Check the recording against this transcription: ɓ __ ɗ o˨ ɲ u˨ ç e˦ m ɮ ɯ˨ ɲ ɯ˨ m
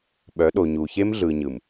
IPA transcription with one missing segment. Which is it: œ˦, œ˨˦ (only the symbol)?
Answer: œ˨˦